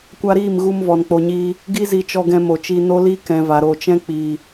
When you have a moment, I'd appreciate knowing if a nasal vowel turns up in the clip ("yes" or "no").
yes